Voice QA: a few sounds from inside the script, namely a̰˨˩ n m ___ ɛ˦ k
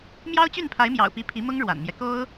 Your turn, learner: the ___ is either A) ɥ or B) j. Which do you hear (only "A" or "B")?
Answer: B